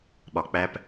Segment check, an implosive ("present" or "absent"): present